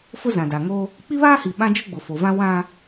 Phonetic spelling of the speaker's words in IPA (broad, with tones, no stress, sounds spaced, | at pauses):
f ʊ˦ z ã˨ d a˨ ŋ o˦ | k͡p i˦ β aː˦ h i˨ ɓ ã˦ d͡ʒ ʊ˦ ɡ͡b ʊ˨ f o˨ v ã˦ w ã˦